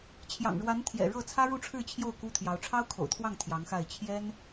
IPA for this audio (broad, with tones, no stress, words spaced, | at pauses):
t͡ɕʰjɑ̰˨˩ŋɻwa˧˥nt̪ʰjɛ̰˨˩ ɻɤ˥˩t͡sʰä˥ ɻu˥˧ʈ͡ʂʰɻ̩˥˧ t͡ɕʰjo˥˩ʊ̯ ku˥t̪ʰjɑ˧˥ʊ̯ ʈ͡ʂʰɑ˥ʊ̯kʰo̰˨˩ʊ̯t̪ʰwɑ˥˩ŋ t̪ʰjɑ˧˥ŋxa˥˩ɪ̯ t͡ɕʰjɛ˥n